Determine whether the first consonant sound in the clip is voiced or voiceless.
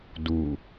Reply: voiced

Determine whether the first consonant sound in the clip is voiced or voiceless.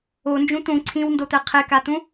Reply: voiced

